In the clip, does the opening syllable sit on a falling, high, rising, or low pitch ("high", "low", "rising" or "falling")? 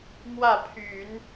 falling